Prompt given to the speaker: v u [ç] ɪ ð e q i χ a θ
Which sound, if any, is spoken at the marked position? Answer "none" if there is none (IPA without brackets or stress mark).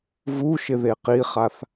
ʃ